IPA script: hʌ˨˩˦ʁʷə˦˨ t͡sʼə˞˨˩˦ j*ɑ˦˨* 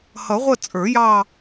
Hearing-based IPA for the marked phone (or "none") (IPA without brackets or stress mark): ɑ˦˨